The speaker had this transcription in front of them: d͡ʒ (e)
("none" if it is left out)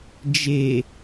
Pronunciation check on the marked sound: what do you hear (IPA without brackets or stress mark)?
e